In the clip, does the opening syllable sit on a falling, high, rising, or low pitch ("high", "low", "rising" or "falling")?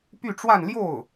falling